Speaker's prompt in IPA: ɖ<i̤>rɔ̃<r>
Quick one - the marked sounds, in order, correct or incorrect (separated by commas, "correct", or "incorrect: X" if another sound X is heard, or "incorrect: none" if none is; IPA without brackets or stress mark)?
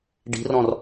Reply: correct, correct